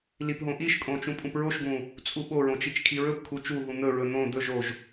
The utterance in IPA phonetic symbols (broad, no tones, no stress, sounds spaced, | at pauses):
l i p ɦ õ ʔ i ʃ kʼ õ t͡ʃ ũ pʼ ũ p ɹ o ʃ ɡ ũ | t͡sʼ u ɓ o ɹ õ t͡ʃ i t͡ʃ kʰ i ɹ ɵ p kʰ u t͡ʃ u ɦ ũ n̪ ɵ ɹ ɵ n̪ õ d̪ ɵ ʒ o ʒ